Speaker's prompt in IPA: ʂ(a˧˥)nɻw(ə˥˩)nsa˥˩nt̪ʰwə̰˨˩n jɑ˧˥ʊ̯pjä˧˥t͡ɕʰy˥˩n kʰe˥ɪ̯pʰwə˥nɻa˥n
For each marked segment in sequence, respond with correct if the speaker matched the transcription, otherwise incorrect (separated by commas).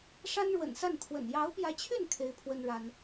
incorrect, incorrect